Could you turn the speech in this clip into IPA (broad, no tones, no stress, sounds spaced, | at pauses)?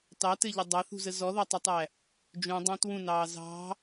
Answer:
t ɑ t ɘ ʎ ɘ dˤ ɑ θ ṳ z ə z ɔ ð ɒ tˤ ɛ tˤ æ | d͡ʒ ũ dˤ ɑ̃ t w ũ n ɑː z ɑ̤